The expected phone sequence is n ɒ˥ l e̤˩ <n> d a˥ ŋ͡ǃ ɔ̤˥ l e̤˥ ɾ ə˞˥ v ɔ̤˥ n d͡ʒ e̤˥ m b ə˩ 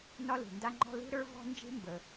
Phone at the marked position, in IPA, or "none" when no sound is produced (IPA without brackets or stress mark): n